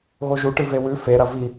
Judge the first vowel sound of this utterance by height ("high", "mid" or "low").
mid